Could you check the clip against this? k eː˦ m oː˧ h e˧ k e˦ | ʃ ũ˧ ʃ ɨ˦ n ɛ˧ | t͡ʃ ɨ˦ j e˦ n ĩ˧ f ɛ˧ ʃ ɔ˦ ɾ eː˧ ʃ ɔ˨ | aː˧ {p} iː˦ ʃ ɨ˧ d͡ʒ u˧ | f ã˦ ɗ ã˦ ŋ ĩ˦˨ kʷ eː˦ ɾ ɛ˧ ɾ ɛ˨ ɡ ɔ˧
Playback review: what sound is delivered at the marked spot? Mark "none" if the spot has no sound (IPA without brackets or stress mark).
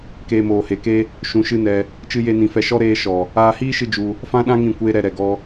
h